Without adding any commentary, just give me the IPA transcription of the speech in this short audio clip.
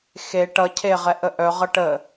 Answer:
xe ʈʌ cʰeʁɛʔə ʔœʁʌ ʈə

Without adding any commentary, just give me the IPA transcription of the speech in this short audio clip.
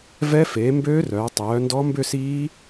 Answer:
vɛ˦˥ feː˩˧ mbøː˦˥rœː˩˧ tˤœː˩˧ ndɔ˦˥mbʏ˥˧siː˦˥

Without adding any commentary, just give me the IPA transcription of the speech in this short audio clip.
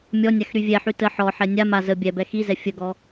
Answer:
mʲɔnʲax ɾyvʲɛħy tə ħɔħɛ nʲa ma zə bʲɛbɛ xizɛ fʲəɡɔ

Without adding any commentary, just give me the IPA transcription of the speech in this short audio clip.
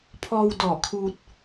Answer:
pʰɔː˧w dɔː˧˩kʰuː˧t̚

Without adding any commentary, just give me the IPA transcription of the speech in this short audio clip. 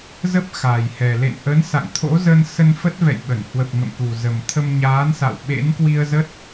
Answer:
zə˦˥p̚ xaː˨˩jhɛ˨˩ lḛ˧˨nʔə˨˦nsa̰˧˨ŋ t̪ʰo̰˧˥zə˧nsə˧n fə˦˥t̚ vɛ̰˧˨jɓə˧˩n hwə˨˩p̚ ŋə̰˧˨mku˨˩ zə˨˩m t̪ʰə˧mɲaː˨˦nsa̰˧˨w ɓḛ˧˥nkwi˧ə̯zə˦˥t̚

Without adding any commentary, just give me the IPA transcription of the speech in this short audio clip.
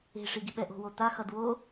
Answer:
e̤ʂi ɡiɓɛʔo̤wo t̪axʌd wo

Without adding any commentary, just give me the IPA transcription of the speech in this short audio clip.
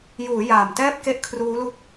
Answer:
juː˩˦ jaː˨˩mtɛː˥˩p̚ ke˥˩ʔkʰruː˦˥lu˦˥k̚

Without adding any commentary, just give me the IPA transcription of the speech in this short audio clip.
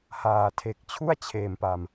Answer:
haː˨˩tʰe˨˩k̚ t͡ɕʰu˥˩a̯t͡ɕʰeː˨˩mpa˨˩m

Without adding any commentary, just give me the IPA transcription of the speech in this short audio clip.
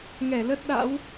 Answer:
ŋɛ˧˩lə˦˥t̚ɗa̰˧˥w

